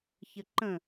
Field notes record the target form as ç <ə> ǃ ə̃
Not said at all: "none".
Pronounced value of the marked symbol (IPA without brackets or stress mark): ə